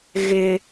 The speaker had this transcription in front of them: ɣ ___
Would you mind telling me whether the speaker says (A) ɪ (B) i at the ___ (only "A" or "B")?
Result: A